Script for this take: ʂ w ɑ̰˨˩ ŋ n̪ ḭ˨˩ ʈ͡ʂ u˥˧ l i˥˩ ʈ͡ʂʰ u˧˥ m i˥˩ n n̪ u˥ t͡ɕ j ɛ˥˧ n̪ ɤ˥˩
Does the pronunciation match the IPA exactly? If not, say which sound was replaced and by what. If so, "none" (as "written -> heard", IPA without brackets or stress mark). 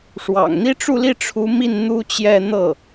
ḭ˨˩ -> i˥